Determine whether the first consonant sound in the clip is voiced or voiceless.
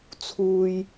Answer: voiceless